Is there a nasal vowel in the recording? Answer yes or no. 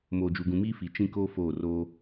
yes